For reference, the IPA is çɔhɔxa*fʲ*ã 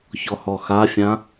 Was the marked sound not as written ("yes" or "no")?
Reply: no